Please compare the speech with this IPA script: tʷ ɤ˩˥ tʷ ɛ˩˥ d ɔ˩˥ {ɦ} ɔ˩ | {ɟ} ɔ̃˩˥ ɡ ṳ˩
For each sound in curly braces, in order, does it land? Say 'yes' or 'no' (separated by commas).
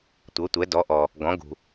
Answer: no, no